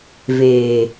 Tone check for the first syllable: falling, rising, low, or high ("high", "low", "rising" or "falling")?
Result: low